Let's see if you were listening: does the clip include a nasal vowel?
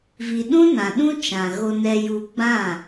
yes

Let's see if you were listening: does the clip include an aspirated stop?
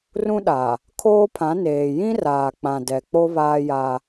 yes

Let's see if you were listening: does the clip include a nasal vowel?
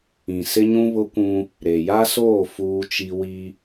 yes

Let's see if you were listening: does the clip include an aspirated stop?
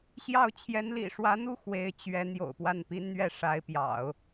yes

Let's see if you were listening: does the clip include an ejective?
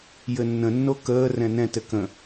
no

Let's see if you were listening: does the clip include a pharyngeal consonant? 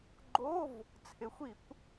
no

